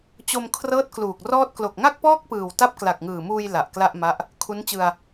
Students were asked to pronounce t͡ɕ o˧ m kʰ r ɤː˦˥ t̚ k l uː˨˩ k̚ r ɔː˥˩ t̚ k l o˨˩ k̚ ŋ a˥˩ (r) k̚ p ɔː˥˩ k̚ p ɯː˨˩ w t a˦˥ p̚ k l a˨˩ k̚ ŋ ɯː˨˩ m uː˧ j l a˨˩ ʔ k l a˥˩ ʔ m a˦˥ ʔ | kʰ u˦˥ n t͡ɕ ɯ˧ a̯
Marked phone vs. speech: incorrect: none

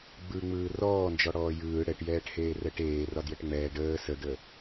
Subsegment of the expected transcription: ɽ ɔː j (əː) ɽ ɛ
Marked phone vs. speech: incorrect: ɯː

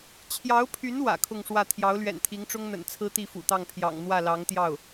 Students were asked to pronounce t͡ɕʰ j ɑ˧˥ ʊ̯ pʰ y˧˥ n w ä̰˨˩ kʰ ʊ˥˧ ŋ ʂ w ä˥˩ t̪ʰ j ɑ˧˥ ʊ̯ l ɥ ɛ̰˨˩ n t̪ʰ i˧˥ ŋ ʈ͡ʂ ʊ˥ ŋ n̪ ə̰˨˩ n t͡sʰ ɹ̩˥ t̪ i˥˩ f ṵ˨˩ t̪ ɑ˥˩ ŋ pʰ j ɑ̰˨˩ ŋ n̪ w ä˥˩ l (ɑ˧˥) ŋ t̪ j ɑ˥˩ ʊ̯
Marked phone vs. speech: correct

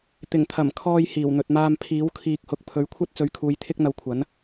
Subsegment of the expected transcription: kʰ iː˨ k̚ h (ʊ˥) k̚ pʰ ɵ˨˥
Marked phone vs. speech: incorrect: ʊ˨˥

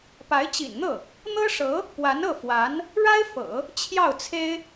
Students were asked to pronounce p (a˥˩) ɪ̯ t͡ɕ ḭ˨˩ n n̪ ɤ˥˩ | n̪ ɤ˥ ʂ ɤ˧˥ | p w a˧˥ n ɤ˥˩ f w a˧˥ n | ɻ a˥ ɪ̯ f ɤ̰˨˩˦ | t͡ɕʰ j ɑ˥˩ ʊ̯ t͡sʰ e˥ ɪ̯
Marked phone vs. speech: incorrect: a˧˥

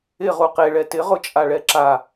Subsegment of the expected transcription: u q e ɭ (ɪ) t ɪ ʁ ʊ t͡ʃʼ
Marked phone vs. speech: incorrect: ɛ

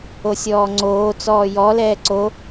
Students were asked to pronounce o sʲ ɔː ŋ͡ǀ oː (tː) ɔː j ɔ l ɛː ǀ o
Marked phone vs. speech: incorrect: t͡s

